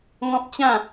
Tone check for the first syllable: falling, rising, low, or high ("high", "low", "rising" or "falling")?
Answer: high